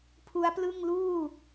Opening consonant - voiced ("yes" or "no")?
no